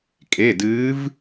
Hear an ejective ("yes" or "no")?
yes